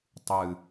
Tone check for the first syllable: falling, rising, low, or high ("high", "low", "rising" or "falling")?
low